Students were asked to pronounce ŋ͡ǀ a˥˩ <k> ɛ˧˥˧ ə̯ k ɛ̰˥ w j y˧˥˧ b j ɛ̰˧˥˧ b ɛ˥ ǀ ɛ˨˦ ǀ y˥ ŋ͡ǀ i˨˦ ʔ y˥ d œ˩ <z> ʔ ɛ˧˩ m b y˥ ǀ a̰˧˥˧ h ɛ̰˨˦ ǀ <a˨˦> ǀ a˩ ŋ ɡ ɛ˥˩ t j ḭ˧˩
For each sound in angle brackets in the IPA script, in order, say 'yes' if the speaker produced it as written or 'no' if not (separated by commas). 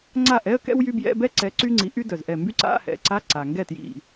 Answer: no, yes, no